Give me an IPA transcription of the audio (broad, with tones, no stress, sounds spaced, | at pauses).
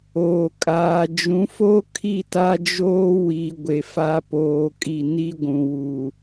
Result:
oː˨ kʼ aː˨ d͡ʒ ũ˨˦ f o˦ kʰ i˦˨ t a˦ d͡ʒ oː˦ w i˨ ɡʷ e˨ f a˦ p oː˨ kʼ i˨ n i˦ ɡʷ ũ˨ w u˨